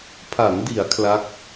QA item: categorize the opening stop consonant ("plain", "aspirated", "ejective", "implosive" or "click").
aspirated